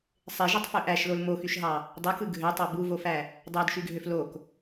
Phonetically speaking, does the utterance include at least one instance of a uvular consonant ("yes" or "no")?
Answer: no